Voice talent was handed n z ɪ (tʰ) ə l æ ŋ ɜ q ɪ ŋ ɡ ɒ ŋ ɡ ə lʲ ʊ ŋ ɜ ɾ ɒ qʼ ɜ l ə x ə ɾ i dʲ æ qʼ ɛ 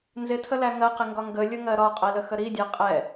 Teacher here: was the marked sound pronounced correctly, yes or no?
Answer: yes